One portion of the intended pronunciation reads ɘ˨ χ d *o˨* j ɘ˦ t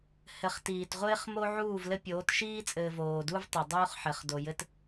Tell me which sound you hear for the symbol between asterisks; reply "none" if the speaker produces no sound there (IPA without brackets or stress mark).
o˨